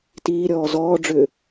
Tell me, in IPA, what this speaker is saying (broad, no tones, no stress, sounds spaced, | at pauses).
t iː ɾʲ ɔː z ɔː ɖ͡ʐ ʏː